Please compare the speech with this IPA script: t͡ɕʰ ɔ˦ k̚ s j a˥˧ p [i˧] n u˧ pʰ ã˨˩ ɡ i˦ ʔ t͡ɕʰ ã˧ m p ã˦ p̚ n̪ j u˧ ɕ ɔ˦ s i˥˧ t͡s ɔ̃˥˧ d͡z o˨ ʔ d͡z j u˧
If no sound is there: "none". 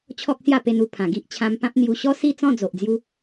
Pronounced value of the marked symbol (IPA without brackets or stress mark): e˧